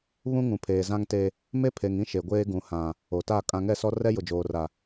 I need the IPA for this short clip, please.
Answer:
βũ˦ŋũ˨pʰeː˨ zã˦ŋte˦ | me˦ pʰe˨ŋ ĩ˦ʃe˨ɡʷeː˦ ɡũ˨hã˨ | o˨ta˦˨ kʼã˦ ŋɛ˦˨sɔ˦rɛ˦ jʊ˨d͡ʒoː˨ra˨

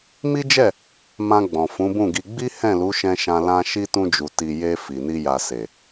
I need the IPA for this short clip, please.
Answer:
mi˦d͡ʒɛ˦˨ | mã˧ɡ͡bɔ̃˨ fũ˨˦bũ˦˨ɡi˧ ɡ͡bi˦ hɛ̃˦˨lu˨˦ʃɛ̃˧ʃã˧ lã˦ ʃi˦tũ˧d͡ʒu˨ ti˨je˧ fi˨ni˧ja˨ se˨

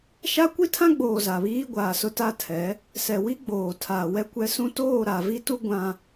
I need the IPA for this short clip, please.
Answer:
ʃa˦kʷi˦tʰã˦ɡ͡boː˨ za˨βiː˦ɡʷaː˨sʊ˦ ta˦tʰɛ˨˦ | sɛ˨ wi˦ ɡ͡boː˨tʰaː˨wɛ˦kʷɛ˦ sũ˦ toː˦˨ɾa˨vi˦tu˦ ɡʷã˦

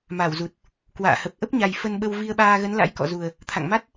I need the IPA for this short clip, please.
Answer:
ma˧˩wzu˨˩t̚ | kwa̰ː˧˨hə˨˩p̚ ʔə˦˥p̚ɲa˨˩j fə˧nɓə˧w vi˧ə̯ɓaː˧ɣə˨˦n la̰˧˥jkɔ̰˧˨ zu˨˩ə̯ | t̪ʰa̰˧˨ŋma˦˥t̚

